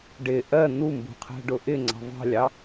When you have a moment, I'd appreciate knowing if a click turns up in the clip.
yes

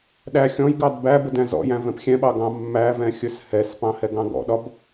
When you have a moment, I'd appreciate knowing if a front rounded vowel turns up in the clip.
no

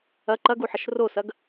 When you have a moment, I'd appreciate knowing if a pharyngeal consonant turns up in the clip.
yes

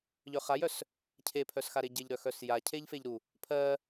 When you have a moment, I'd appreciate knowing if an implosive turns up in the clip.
no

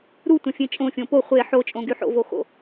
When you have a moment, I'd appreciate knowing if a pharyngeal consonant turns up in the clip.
yes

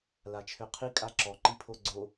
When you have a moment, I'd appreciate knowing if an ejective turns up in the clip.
yes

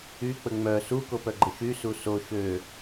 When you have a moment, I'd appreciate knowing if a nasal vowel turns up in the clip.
no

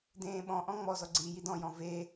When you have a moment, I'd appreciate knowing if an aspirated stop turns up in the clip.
no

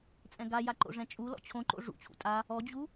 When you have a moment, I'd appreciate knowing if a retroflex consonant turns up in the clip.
yes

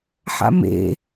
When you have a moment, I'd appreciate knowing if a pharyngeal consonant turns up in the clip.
yes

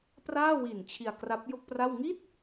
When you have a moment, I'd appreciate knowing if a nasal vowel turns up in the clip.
no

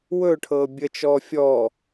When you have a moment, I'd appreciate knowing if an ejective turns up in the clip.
no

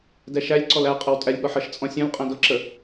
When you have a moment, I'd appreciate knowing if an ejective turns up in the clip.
yes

